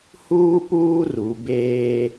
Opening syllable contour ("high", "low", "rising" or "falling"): high